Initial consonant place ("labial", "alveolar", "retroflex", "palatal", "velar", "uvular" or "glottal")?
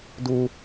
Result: alveolar